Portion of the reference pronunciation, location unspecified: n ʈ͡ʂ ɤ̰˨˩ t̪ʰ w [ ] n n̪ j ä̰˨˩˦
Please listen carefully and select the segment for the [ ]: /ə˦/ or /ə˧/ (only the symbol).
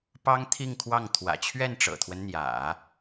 ə˦